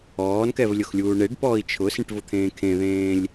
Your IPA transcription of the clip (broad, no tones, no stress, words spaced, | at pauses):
ɔːnkɛv lʲʊxlʲuːɳeɖpɔːi̯ t͡ʃʰʊsĩʈ vʊt̪ʰẽːkʰẽðẽːlʲ